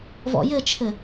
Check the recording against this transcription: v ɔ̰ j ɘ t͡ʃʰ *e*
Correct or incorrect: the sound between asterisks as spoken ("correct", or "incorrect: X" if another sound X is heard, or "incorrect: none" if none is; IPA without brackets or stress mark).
incorrect: ɘ